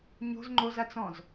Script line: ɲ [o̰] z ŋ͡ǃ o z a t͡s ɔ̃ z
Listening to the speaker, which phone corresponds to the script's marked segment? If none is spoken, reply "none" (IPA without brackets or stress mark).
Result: o̤